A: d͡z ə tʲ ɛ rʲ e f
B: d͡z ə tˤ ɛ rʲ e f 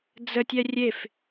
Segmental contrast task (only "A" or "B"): A